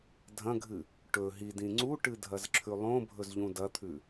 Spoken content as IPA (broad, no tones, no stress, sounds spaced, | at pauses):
dʱ ɐ̃ ɡʱ ɨ | ʈ ɵ ɦ i d ĩ ŋ͡ǀ u ʈ ɨ dʱ ɐ z ǁʰ ʉ lˠ õ bʱ ɵ z ʎ ũ d ɐ t̪ʰ ʉ